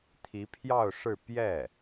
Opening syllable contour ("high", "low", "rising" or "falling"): rising